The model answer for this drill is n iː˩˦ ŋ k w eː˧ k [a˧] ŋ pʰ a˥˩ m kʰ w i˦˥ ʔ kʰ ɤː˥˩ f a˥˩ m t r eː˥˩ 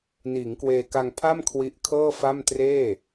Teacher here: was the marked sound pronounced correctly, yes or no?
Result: yes